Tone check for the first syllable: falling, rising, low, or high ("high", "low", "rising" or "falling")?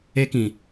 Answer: high